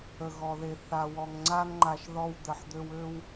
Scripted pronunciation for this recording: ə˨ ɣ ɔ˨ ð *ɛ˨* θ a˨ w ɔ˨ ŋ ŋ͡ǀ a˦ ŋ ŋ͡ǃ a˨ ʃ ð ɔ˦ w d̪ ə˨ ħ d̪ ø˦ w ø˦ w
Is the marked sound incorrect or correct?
incorrect